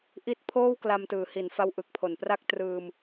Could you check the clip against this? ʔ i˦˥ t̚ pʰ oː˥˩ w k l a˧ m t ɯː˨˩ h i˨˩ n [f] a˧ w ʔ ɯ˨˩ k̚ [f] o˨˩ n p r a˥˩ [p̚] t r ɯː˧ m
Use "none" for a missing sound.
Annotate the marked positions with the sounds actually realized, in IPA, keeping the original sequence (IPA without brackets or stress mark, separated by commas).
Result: f, pʰ, k̚